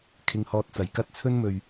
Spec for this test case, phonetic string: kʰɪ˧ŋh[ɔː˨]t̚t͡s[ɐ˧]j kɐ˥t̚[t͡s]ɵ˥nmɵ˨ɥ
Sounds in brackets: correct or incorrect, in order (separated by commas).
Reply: incorrect, incorrect, incorrect